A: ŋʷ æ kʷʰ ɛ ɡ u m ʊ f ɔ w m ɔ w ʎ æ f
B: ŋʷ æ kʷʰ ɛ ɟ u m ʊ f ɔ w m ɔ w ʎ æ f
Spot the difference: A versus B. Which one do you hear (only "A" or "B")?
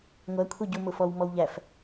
B